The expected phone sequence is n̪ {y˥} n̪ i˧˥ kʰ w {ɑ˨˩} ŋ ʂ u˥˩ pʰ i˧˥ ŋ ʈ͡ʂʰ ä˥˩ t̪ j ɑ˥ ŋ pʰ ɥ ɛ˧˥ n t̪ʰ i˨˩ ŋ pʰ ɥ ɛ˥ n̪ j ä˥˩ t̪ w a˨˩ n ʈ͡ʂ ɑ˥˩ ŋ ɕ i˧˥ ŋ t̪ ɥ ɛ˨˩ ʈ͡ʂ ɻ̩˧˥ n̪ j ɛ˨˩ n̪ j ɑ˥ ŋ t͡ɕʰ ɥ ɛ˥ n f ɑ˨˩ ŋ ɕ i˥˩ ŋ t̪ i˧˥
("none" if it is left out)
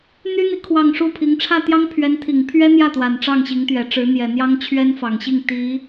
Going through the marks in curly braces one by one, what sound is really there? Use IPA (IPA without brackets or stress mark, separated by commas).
y˥, ɑ˨˩